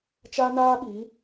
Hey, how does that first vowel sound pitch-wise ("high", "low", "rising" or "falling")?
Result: high